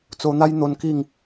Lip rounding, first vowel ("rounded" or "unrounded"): rounded